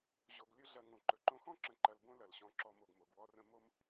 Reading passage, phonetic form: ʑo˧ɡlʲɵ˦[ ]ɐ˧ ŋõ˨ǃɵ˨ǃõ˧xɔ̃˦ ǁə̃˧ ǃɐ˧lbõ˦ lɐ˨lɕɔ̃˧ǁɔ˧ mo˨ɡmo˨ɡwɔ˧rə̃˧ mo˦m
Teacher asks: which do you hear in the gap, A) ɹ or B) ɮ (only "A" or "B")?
B